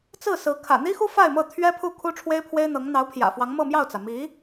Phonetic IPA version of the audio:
t͡s ɹ̩˥˩ s ɹ̩˧˥ kʰ ä̰˨˩ n̪ i˥ x u˥ f a˥˧ ɪ̯ m ɤ˥˩ t̪ʰ ɥ ɛ˥ pʰ u˥˩ kʰ u˥ ʈ͡ʂʰ w e˥ ɪ̯ pʰ w e˥ ɪ̯ n̪ ɤ˧˥ ŋ n̪ ɑ˧˥ ʊ̯ pʰ j ä̰˨˩ f w ɑ˧˥ ŋ m ɤ˥˧ m j ɑ˥˩ ʊ̯ t͡s ä˩ m i˧˥

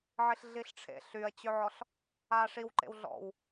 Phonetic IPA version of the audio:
ʕ i ɬ ɮ i ɬ ʈ͡ʂʰ ḛ ɬ y ɐ̯ t͡ɕ ø ʕ ɔ ɬ | aː ʂ i w ǃ ḛ w ɮ ɔ̰ w

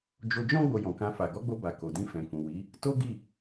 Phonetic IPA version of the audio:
d͡ʒ o˧ d͡ʒ ɔ̃˦ ɡ͡b o˧ j ɔ̃˨ k ã˧ f a˨ ɡ ɔ˨˦ ɡ͡b o˧ b a˨ k o˨ d ĩ˧ f ɛ̃˨ k ũ˨ w i˨˦ | t o˦ ɡ i˦˨

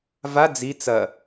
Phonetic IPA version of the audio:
v a d͡z i t͡s ɐ

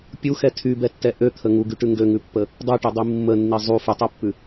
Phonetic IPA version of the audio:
pʲ u x ɛ tʰ y b ɛ tː ɛ ʔ ø t̪ʰ ə ŋ u ɡ y ʈ ʉ ŋ ɡ ø ŋ ʉ pː ə | dˤ ʉ ʈ i dˤ i mː ə nː i zˤ u f ʉ tˤ u pː ʉ

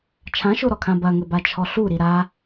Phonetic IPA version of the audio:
t͡ʃʰ ã ʃ o ɾ ɔ kʰ ã b ɐ ŋ ɘ b a t͡ʃʰ ɔ ɬ u ɾ i ɾ a

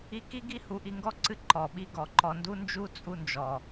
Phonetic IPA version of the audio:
i˧ k i˦ ɡ i˦ h u˨ ʔ i˧ ŋ ɡ ɔ˦ ǀ ɨ˧ ǃ ɔ˨ ɓ i˧ ɡ ɔ˨ ǃ ɔ˧ n d u˦ n d͡ʒ u˦ t͡sʼ u˧ n d͡ʒ ɔ˨

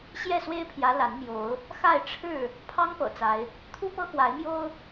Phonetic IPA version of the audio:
ɕ j ɛ˥˨ s w e˦ ɪ̯ pʰ j ä˨˦ l a˨˦ n m j o˨˦ ʊ̯ | x a˥˨ ɪ̯ ʈ͡ʂʰ ɻ̩˥˨ | pʰ ɑ˦ ŋ p ɤ̰˨˩ t͡s a˨˦ ɪ̯ | t̪ʰ u˦ p ɤ˦ x w a˨˦ ɪ̯ m j o˦ ʊ̯

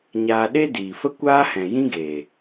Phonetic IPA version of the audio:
ɲ aː˧ ɗ e˦ d iː˨ f ə˦ kʷ aː˦ h ɛ̃˨ j ĩ˦ ɡ e˨

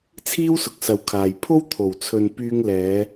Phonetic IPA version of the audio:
t͡sʰ iː˥ w s ʊ˨ k̚ s ɐ˨ w kʰ aː˨ j pʰ o˥ w t̪ʰ o˨˩ w t͡sʰ ɵ˨ n p yː˧ ŋ l ɛː˨˧

